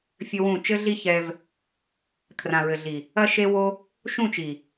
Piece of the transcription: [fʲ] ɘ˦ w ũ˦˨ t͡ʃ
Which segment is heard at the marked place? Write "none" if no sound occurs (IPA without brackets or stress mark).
fʲ